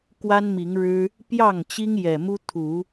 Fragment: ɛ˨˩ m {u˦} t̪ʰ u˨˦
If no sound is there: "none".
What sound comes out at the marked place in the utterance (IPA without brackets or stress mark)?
u˦